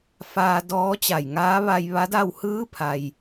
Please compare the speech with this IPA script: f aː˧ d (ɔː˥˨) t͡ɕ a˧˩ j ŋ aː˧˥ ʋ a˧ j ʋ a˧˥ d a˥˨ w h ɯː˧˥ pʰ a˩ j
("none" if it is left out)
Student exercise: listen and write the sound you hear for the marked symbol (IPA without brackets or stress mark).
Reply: ɔː˧˥